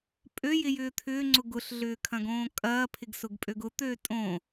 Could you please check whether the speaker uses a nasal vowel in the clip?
yes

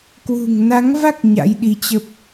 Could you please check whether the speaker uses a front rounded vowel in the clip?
no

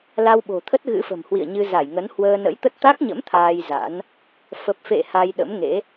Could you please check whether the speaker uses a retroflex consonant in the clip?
no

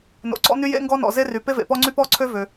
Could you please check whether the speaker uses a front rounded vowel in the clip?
yes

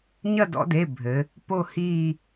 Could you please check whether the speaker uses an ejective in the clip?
no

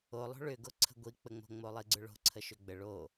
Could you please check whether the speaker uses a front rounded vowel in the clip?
yes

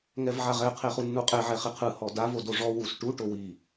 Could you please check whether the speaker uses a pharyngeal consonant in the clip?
yes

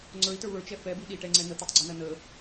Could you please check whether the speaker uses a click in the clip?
yes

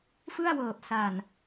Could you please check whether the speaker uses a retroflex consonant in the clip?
no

